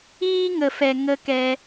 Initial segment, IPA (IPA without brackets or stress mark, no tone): iː